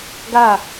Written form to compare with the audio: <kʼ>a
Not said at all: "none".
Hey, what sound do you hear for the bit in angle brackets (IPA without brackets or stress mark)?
ɡ